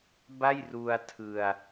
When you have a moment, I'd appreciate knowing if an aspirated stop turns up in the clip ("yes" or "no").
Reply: yes